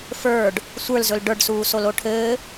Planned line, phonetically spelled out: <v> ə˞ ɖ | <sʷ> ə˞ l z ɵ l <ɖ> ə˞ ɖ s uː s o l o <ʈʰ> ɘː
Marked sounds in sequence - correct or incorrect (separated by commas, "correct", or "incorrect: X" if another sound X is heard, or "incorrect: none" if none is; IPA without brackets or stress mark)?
incorrect: f, correct, correct, correct